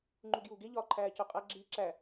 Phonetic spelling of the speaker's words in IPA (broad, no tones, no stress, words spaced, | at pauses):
ŋ͡ǃuɡjuːɡe ʎɒːǃʰæːcoqʼæ ɡ͡ǁiːǁæ